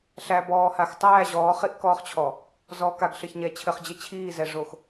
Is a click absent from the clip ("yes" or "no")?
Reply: yes